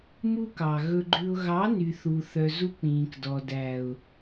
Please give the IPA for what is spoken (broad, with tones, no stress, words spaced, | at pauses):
mu˦kɑ˨ɣɵ˧ɡ͡ǃʉ˧ʊ̯ ɣɑ˨˦ny˨θu˨ θœ˨ zu˧k͡pĩː˨kdɔ˨ dæ˨ʊ̯